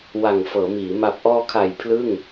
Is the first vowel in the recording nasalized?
no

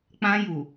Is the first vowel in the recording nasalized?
yes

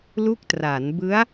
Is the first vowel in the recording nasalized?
no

